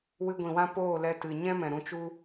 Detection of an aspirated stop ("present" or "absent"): absent